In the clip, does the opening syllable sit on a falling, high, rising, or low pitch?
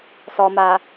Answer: low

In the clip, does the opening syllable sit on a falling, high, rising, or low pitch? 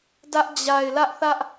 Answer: high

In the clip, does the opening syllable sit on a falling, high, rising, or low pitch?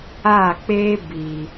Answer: falling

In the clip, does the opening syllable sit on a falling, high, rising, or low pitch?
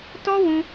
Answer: high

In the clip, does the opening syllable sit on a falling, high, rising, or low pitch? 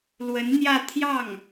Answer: rising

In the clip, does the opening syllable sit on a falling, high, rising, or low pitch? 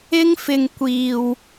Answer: high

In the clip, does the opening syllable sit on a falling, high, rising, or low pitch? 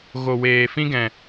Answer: low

